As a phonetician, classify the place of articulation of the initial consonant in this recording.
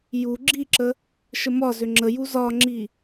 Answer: palatal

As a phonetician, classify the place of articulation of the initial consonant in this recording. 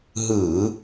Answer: glottal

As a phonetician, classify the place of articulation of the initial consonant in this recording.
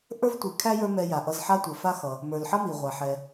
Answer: glottal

